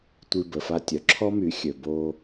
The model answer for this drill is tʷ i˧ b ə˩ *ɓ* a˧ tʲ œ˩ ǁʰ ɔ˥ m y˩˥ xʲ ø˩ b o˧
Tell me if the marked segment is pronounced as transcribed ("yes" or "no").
no